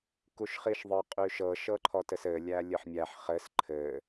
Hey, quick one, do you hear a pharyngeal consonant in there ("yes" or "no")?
yes